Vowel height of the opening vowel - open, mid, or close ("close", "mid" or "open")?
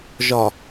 open